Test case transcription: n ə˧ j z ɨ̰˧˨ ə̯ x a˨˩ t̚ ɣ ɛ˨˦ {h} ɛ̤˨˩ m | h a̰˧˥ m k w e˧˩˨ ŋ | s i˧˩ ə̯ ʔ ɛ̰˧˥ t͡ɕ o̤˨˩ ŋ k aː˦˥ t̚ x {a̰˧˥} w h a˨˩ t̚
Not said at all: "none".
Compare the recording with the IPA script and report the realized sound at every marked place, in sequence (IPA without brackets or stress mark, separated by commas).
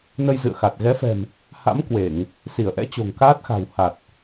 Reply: f, a̤˨˩